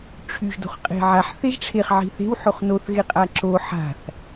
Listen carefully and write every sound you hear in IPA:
ʈ͡ʂʰ y ʒ d o̤ χ qʼ e̤ ʕ a ħ θ e ʒ ʈ͡ʂʰ e χ ʕ i̤ θ e̤ w ħ o χ n o θ ɣ e qʼ a ǁ o ħ a̤ θ

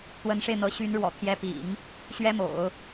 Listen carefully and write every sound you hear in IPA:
t̪ w ə˧˥ n ʂ e˧ ɪ̯ n̪ ɤ˧˥ ɕ y˧˥ n ɻ w ɔ̰˨˩ t̪ʰ j ɛ˧˥ p ḭ˨˩˦ ŋ | ɕ ɥ ɛ˥ m o̰˨˩˦ ʊ̯

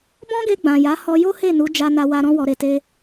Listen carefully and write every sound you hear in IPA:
b ɔ̃˦ ɡ e˧ ɡ͡b ã˨ j a˨˦ h ɔ˧ j o˦ h e˦˨ n u˨˦ d͡ʒ a˧ n a˧ w a˧ ɾ ɔ̃˦ w ɔ˧ ɾ e˧ t e˦

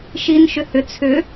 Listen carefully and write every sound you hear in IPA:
ʃ i n ʃ ʏ h ʏ t͡sʰ ʏ

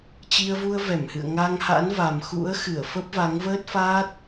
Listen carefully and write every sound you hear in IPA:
t͡ɕ i˧ ə̯ v u˧ ə̯ v ɛ˧˩ m h ɨ̰˧˨ ə̯ ŋ a˧ ŋ h a̰˧˥ n v a˨˩ m x ṵ˧˥ ə̯ x ɨ˧˩ ə̯ f ə˦˥ p̚ v a˨˦ ŋ v əː˦˥ t̚ f aː˦˥ t̚

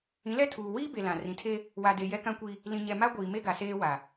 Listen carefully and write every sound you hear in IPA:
ĩ˨˦ l ɛ˦ tʰ uː˨ w iː˦ b e˨ l ã˨ r ĩ˨ tʰ e˦ | w a˨ d e˨ j ɛ˦ k ã˦ kʷ i˦ | l ĩ˨ ɲ ɛ˨ m a˦ ɡʷ iː˨ m e˦ ɡ a˨ s eː˦ w a˨

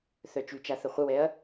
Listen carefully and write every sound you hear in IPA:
θ œ t͡ʃ y t͡ʃ a θ ə χʷ ə w ɛ ɐ̯

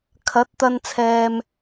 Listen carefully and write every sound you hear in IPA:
kʰ ɐ˨˥ t̚ t̪ ɐ˧ n t͡sʰ ɛː˨ m

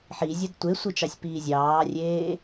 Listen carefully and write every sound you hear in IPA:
ħ i zʲ ə d tʷ e sʷ i t͡ʃ ɑ sʲ p iː zʲ ɑː rʲ eː

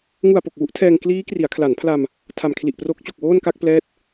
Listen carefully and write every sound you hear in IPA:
ŋ u˨˩ a̯ p o˨˩ k̚ w u˦˥ ʔ tʰ ɛː˧ ŋ k l iː˦˥ k r i˩˦ a̯ kʰ l a˩˦ n pʰ l a˧ m | tʰ a˨˩ m kʰ l i˨˩ ʔ p r o˦˥ k̚ t͡ɕ o˨˩ k̚ w oː˥˩ n k a˥˩ k̚ p l ɛː˦˥ t̚

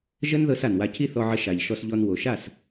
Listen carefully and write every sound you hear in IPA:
ʒ ə˦ n ð ɤ˦ s a˨ n w a˧ cʰ i˦ θ ɔ˧ ʕ ə˧ ʃ a˨ ʎ ʃ ɔ˧ s ʎ ɔ˧ n w o˨ ʃ a˦˨ s

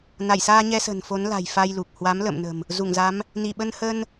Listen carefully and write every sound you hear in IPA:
n a˧˩ j s aː˧ ɲ ɛ˧ s ə̤˨˩ n f o˨˦ n l a̤˨˩ j f a˧ j l u˨˩ k̚ h w a˨˦ m l ə̰ː˧˨ m n ə̤˨˩ m | z u˧˩ ŋ z a˨˦ m | n i˧˩ ɓ ə˧ n h ə˧ n

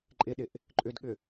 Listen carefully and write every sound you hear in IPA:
ǃʼ ɪ ɗ ɪ ʔ | ǃʼ ʏ d ɠ ʏ

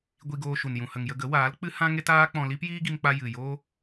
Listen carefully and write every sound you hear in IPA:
ɡʷ i˧ ɡ oː˧ ʃ u˨ n j ũ˨ h ə˨ ŋ j ə˧ ɡ ə˨˦ w aː˨˦ l k͡p ɨ˦ h ã˦ ŋ e˦ t aː˦ k͡p ɔ̃˧ l i˦ p j iː˦ ɡ i˧ m k͡p a˧ j ɨ˨ j o˦

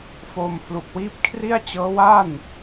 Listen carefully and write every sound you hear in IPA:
f oː˧ m pʰ l u˨˩ k̚ w iː˦˥ p̚ kʰ r i˥˩ a̯ t͡ɕ ɤː˦˥ w a˥˩ n

